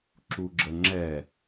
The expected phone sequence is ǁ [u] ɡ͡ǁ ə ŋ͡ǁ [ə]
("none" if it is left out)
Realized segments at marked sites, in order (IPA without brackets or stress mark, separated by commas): u, ɛ